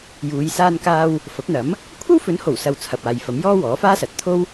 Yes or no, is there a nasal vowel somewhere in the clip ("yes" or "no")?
no